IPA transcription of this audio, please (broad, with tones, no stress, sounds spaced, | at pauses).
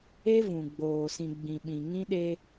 e˦ v ũ˨ ɡ͡b oː˨ s ĩ˨ ɡ͡b ĩ˨ ɓ ĩ˨ ŋ ĩ˦ ɗ e˦